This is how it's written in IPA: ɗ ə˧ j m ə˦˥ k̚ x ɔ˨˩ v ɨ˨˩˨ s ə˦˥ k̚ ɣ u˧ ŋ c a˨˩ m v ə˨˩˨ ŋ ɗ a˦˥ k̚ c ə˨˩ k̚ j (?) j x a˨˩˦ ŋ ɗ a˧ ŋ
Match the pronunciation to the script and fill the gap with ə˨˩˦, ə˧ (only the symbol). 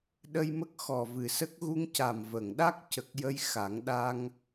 ə˧